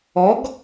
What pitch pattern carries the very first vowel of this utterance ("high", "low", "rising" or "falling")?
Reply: rising